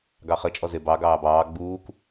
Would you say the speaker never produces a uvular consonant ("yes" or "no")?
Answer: no